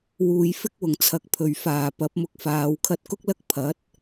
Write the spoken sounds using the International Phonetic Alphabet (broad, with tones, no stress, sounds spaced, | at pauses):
w uː˨˧ j f ɪ˥ k̚ w ʊ˨˩ ŋ t͡sʰ ɐ˨ k̚ pʰ ɵ˨˩ ɥ f aː˨˩ p ɐ˨˥ p̚ m ʊ˧ k̚ f aː˨˧ w kʰ ɐ˧ t̚ k ʊ˥ k̚ l ɐ˥ k̚ pʰ ɐ˨˥ t̚